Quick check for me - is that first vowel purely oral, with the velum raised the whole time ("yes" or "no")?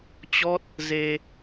yes